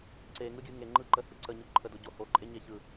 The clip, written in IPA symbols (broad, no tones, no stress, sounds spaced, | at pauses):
ǀ e ŋ ɯ ɡʲ ɯ ŋ e ŋ͡ǃ ɯ ǃ ə h ɯ ǀ ə ɲ o ǃʰ ə d o ɟ o h o ǃʼ e ɲ e ç ɯ